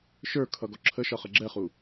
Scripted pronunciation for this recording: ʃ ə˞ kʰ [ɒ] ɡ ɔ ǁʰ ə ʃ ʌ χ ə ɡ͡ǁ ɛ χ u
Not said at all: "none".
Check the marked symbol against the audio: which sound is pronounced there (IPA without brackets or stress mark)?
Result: ʌ